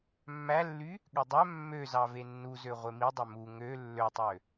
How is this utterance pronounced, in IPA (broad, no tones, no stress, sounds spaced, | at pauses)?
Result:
mː æ lː y | ɠ ø dˤ æ mː ø z ɑ v e nː u z ø ʁʷ e m i dˤ ø m u ŋ ø lː ø tˤ ø